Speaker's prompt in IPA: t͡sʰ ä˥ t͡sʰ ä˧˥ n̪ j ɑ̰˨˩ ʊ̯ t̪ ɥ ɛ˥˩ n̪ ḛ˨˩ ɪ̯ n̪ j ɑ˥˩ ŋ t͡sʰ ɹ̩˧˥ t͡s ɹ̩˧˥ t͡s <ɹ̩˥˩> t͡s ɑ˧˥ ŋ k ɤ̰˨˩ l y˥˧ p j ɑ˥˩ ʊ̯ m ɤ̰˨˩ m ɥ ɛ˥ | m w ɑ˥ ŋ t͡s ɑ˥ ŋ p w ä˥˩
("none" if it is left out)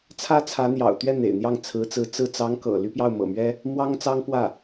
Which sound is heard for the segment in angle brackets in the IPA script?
ɹ̩˥˩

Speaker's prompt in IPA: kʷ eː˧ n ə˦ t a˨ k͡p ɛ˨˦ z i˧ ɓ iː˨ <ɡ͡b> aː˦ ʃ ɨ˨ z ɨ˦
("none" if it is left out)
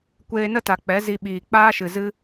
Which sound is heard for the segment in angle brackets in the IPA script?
k͡p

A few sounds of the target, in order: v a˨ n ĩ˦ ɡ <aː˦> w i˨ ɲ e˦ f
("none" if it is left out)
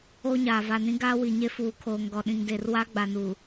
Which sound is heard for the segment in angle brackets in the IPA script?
aː˦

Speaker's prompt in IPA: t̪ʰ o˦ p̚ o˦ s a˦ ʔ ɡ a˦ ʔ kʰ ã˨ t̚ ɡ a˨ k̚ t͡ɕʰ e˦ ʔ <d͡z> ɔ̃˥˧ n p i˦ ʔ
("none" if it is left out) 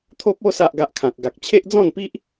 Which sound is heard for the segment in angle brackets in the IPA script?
d͡z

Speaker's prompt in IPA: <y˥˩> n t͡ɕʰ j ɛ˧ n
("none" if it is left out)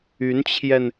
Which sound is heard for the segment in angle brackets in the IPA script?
y˧˥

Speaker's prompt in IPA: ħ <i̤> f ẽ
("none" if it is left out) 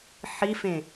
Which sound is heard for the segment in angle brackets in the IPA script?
i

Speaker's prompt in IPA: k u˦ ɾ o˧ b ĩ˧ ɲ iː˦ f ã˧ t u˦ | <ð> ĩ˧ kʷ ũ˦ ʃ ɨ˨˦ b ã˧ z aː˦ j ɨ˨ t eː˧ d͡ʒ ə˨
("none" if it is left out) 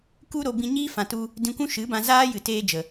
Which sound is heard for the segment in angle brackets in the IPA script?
d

